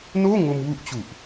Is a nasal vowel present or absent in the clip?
absent